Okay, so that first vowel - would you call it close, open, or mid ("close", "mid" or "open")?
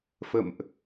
mid